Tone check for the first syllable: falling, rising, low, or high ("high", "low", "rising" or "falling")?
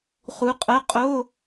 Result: rising